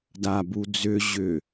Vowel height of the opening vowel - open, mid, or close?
open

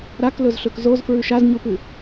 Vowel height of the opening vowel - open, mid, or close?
open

